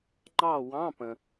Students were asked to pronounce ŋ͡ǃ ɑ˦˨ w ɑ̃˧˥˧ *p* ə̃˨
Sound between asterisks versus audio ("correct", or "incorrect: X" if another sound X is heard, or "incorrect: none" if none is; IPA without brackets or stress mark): correct